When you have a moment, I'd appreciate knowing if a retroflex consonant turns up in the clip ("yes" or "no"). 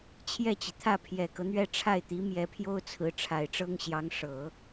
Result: yes